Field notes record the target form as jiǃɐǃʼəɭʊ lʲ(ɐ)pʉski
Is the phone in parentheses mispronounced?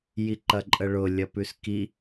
no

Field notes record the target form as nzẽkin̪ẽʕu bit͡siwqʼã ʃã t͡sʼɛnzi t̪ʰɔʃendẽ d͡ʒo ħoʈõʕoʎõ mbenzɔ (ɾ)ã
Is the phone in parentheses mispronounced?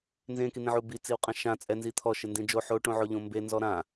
no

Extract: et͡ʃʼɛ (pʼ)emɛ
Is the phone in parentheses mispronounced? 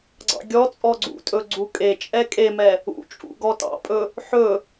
yes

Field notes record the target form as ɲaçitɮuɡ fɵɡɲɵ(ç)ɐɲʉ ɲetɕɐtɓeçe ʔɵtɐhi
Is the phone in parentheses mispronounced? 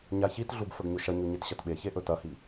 yes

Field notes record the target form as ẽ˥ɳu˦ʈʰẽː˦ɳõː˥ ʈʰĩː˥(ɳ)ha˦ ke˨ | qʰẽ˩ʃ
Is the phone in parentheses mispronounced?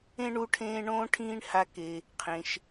no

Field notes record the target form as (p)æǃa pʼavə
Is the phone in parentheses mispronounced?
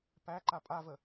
no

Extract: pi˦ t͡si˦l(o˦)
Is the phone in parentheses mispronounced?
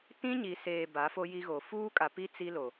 yes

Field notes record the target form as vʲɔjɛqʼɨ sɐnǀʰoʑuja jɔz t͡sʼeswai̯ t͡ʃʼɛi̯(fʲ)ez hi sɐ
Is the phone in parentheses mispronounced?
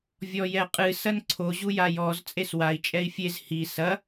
no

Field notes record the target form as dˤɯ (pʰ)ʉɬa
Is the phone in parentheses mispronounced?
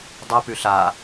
yes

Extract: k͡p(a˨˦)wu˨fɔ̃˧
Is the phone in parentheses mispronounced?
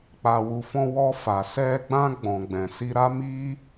yes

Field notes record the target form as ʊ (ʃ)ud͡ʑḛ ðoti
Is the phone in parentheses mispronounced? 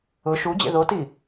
no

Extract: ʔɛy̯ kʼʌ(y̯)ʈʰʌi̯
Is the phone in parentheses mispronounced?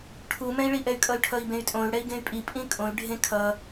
no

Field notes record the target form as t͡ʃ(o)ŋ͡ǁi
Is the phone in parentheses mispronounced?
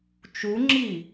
yes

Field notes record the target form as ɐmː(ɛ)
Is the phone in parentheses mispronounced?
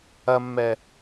no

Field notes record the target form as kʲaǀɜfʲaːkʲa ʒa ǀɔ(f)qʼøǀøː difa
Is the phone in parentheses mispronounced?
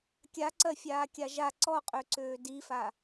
yes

